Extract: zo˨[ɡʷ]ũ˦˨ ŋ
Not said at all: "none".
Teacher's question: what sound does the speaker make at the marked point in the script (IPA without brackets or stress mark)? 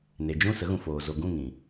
ɡ